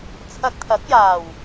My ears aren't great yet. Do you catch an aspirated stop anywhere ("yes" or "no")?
yes